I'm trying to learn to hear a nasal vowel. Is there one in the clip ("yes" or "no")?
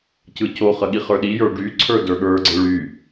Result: no